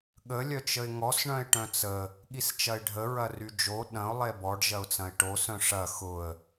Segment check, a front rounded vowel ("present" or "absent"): present